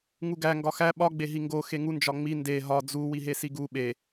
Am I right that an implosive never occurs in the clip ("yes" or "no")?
no